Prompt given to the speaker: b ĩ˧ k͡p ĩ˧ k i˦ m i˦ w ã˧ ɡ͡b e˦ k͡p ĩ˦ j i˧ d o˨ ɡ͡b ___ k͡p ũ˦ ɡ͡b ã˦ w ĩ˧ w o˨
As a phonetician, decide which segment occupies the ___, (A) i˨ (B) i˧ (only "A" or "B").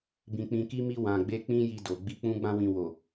B